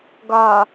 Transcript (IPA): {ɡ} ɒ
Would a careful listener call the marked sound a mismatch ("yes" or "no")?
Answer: no